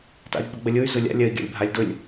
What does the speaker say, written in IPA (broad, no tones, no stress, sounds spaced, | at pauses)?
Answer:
t a̰ i̯ ɡ͡b ə ɡ͡b ə lʲ ʊ y̯ z ʊ lʲ a̰ lʲ ɜ i̯ ɡʲ a̰ lʲ bʱ a lʲ d ʊ lʲ